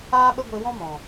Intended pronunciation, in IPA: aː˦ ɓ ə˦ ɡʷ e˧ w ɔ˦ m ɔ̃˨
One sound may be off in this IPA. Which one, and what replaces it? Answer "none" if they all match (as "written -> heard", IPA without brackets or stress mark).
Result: ɔ˦ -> ɔ̃˦